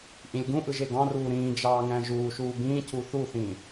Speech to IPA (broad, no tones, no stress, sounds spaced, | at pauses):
ʔ ĩ lʲ ɡ ũ ʔ ɯ ʒ e ɡ ɑ̃ r uː ɾ ĩː d͡ʒ ɑː ŋ æ̃ ʒ uː ʃ uː b ĩː cʰ u θ u θ ĩː